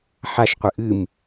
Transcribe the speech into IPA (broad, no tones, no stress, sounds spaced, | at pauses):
ħ a ʃ qʷ ɨ ʔ ɨ m